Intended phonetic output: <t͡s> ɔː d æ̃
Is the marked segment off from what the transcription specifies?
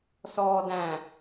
yes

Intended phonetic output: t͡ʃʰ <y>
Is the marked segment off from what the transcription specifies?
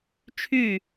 no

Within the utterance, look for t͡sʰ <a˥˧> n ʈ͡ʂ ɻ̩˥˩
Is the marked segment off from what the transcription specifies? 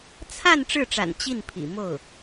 no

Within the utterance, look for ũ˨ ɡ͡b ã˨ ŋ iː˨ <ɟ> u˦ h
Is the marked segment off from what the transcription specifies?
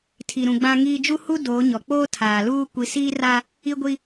yes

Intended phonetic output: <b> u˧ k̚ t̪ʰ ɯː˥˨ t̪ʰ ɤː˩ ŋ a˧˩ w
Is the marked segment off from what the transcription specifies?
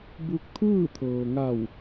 no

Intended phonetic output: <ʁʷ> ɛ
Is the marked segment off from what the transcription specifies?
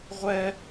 no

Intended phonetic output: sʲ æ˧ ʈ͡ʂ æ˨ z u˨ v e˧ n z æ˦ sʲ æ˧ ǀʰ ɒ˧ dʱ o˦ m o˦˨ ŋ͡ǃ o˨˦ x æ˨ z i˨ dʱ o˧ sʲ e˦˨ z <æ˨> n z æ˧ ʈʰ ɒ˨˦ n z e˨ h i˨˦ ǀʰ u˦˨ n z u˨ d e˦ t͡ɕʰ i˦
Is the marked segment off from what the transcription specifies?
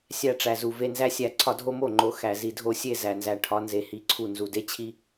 no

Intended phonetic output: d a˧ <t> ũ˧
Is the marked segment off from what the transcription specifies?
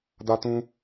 no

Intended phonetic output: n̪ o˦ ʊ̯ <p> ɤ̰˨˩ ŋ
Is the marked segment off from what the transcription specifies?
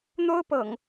no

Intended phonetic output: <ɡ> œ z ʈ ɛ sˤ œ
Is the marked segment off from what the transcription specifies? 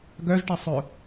no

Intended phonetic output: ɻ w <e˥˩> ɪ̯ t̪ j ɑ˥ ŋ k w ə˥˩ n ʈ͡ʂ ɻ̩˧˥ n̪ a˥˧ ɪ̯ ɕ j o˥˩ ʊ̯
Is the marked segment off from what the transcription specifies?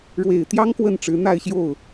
yes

